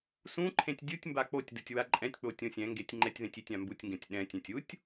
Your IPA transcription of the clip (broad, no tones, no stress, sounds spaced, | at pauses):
s ũ ǃʰ ẽ tʲ dʲ u tʲ m b a k͡p o tʲ d u tʲ w a ǃʼ ɛ̃ tʲ k͡p o tʲ õ sʲ ɛ̃ ŋ ɡ e tʲ ŋ͡ǃ ɛ tʲ ð ẽ tʲ i tʲ ã m b u tʲ ŋ ɡ ɛ̃ tʲ ɗ ɛ̃ tʲ ɛ̃ tʲ u tʲ